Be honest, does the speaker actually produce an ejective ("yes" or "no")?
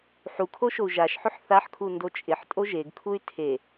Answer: yes